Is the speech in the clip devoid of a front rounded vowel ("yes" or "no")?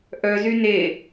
no